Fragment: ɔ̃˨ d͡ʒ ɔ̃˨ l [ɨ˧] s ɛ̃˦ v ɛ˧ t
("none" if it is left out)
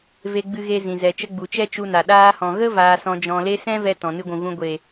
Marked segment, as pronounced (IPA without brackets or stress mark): e˧